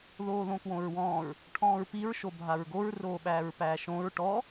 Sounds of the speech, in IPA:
ð oː ð õ k w õ ɹ w ɔ̃ː ɹ | ʈʰ ɔ̃ː ɹ p i ɹ ʃ o bʱ a ɹ ɡ o ɹ r oː ɓ æː ɹ p æː ʃ õ ɹ ʈ ɔ

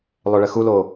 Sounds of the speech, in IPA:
lˠ ø ɭ ɘ x u l o

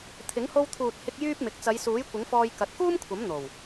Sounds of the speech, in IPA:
t̪ʰ ɪ˨˥ ŋ h o˧ w t̪ʰ uː˨ t̚ h ɪ˧ k̚ j yː˥ p̚ m ɪ˨˥ k̚ t͡s ɐ˨˧ j s uː˨˥ j kʷ ɪ˨˥ ŋ f ɔː˧ j k ɐ˨˥ t̚ k uː˥ m kʷʰ ɐ˨˥ m n̪ o˨˩ w

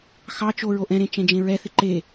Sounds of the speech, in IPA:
x ɑ t͡ʃ o ɹ o ʔ ɛ̃ ɾ ẽ t͡ʃ ɛ̃ d͡ʒ ẽ ɹ ɛ θ ɪ ǃ e

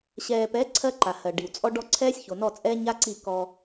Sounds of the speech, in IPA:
ɕ ɛː˨ p ɛ˨˦ ǀʰ ɜ˦ ǃ a˨ h ɜ˨ ɖ i˨ w t͡sʼ ɔ˦ ɖ ɔ˦ ǀʰ ɛː˦ sʲ ç o˨ n ɔ˦˨ t͡sʼ ɛː˦ ɲ a˦ ǀ i˦˨ k ɔ˧

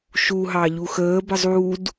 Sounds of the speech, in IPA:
ʃ u ɦ ɑ ʎ u x əː b ə zˤ uː d

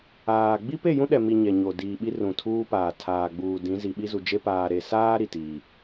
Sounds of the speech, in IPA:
aː˨ ɡ͡b i˦ p e˦˨ j ũ˦ ɗ ɛ˨ m i˨ ɲ ɛ˨ ɲ o˨ d iː˨ ɓ i˦ r ũ˨ tʰ uː˦ p aː˨ tʰ aː˨ ɡ͡b uː˨ d ĩ˨˦ z i˨ ɓ i˦ z u˨ d͡ʒ e˦ p aː˨ ɾ e˨ s aː˦ ɾ i˨ t iː˨

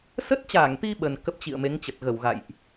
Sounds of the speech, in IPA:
s ə˦˥ t̚ t͡ɕ aː˧˩ ŋ t̪ i˧ ɓ ə˨˩ n k ə˦˥ p̚ t͡ɕ ḭ˧˨ ə̯ m e˨˦ ŋ t͡ɕ ə˨˩ t̚ ɣ ə˧˩ w ɣ a̰˧˨ j ʔ

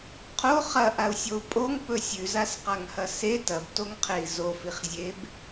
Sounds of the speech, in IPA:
qʰ o χ ɐ ʔ a u̯ sʲ o u̯ pʼ o ŋ p ɵ sʲ ʉ z a s q a ŋ h ɐ s e t ɐ b t o ŋ qʰ e i̯ z o f i χ zʲ e b

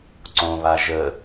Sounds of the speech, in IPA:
ǀ õ β a ʒ ə

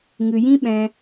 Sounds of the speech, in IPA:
ŋ ɨ˨ j ĩ˦ ɓ ɛ̃˧

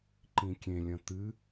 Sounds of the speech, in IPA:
ǃ ĩ kʲ ẽ lʲ ɐ̃ t̪ ɨ

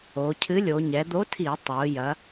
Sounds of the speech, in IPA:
o˩˧ cʰ ɨ˨˥ lʲ o˩˧ ɲ ɛ˩˧ d̪ o˨˥ tʰ i˧˩˧ tˤ o˩˧ j ɐ˨˥

